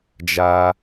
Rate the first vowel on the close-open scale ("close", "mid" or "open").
open